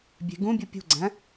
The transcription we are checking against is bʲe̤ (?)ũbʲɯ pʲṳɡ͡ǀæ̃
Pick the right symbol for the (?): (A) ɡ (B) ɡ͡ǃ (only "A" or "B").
A